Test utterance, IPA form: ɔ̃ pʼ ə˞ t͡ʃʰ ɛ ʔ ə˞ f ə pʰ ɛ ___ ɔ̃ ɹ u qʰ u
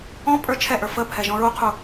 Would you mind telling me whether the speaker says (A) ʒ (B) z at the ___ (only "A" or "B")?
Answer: A